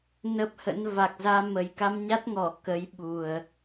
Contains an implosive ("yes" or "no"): yes